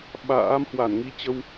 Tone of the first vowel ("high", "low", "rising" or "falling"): rising